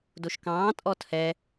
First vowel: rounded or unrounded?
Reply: rounded